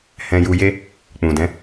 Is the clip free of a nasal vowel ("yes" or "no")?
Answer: no